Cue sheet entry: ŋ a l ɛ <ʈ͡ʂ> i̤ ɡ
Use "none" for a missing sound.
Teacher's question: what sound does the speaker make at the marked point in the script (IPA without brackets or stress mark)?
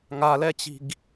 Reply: t͡ɕ